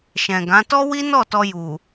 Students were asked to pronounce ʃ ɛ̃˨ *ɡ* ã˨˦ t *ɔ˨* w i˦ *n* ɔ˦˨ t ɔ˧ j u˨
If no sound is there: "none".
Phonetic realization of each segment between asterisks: ɡ, ɔ˦, n

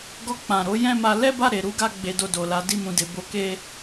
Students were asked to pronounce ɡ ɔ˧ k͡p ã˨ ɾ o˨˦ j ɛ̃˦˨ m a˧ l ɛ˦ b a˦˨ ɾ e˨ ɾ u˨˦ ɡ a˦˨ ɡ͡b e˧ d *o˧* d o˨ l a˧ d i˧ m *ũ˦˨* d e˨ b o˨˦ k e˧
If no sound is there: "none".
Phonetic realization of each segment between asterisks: o˧, ũ˨

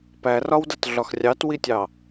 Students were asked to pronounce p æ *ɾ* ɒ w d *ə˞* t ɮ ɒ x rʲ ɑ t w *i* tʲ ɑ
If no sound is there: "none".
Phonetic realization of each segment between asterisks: r, ʌ, i

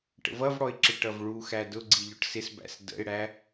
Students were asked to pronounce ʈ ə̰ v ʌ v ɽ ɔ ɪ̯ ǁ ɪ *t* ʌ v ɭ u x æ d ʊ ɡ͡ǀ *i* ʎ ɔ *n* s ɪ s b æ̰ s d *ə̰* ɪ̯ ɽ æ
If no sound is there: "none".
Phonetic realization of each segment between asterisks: ʈ, i, ʈ, ə̰

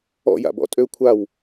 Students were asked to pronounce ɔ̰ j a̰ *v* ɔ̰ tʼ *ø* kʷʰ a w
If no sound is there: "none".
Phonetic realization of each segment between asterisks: b, ø

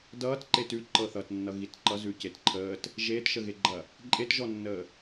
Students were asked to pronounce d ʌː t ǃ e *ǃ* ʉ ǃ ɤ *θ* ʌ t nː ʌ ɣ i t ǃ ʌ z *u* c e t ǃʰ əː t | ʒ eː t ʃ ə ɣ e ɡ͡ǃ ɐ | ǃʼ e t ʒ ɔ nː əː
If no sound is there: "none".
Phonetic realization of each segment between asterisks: t, θ, ʉ

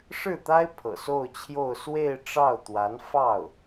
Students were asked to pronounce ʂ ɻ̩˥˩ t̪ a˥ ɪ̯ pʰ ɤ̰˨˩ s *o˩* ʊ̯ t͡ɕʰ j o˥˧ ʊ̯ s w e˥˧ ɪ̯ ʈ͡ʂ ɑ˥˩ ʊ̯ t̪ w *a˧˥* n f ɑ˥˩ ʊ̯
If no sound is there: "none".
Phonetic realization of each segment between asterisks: o˥˧, a˧˥

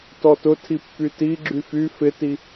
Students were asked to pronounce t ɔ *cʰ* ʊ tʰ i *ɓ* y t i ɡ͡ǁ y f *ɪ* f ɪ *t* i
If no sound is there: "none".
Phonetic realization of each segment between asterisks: t, pː, y, t

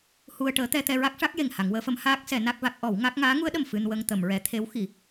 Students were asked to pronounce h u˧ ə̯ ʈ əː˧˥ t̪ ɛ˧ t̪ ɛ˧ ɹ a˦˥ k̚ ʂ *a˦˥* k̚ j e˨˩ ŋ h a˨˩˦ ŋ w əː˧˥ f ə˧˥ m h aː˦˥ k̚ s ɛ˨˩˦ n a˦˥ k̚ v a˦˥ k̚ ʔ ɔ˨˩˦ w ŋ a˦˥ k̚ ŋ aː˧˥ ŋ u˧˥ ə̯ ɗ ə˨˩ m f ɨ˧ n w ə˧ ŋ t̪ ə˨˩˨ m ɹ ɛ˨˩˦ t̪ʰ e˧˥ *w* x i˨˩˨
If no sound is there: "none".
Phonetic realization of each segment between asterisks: a˦˥, w

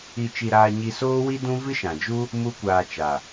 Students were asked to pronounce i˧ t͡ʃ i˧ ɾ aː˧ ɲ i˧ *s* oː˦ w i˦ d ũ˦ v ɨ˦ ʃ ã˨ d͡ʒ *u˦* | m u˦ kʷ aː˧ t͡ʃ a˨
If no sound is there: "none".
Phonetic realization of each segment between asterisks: s, u˦

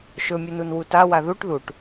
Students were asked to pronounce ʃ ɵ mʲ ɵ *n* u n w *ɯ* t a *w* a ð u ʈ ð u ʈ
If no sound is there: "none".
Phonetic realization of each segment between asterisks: n, u, w

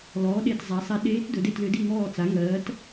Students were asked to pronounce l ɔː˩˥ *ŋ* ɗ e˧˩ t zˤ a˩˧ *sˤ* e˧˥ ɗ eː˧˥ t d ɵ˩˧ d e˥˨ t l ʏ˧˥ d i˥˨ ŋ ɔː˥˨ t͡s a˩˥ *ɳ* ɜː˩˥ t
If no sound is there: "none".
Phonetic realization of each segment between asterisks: none, sˤ, ŋ

